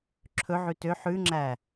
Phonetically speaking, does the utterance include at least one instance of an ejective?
no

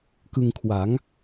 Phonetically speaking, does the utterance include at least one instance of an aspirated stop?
yes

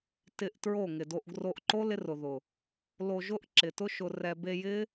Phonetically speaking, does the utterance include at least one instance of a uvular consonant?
no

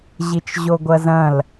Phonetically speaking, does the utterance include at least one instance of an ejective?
no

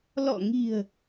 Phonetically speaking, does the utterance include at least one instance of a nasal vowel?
no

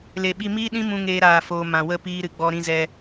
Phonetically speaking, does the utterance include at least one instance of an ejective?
no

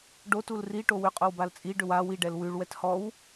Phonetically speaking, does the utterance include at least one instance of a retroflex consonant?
yes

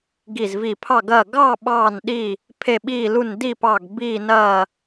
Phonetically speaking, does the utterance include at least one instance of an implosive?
yes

